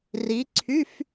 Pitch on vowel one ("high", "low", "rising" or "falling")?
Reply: rising